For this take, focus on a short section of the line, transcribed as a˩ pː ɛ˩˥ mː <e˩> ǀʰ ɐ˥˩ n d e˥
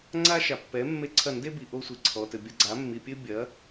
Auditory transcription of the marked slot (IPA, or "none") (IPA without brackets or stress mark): e˥˩